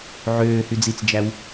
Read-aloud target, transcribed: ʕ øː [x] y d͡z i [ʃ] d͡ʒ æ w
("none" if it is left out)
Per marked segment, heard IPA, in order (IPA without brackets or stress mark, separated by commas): h, t͡s